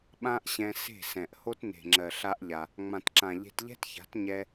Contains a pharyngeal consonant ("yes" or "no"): no